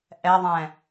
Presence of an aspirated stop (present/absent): absent